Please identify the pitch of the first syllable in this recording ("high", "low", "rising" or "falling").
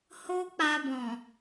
high